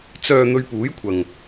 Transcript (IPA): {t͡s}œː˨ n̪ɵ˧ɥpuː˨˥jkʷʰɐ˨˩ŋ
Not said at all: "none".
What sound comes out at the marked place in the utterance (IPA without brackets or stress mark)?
t͡s